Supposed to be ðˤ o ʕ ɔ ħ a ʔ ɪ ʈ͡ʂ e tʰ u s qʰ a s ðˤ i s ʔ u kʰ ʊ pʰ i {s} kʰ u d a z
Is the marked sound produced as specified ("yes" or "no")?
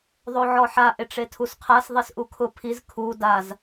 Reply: no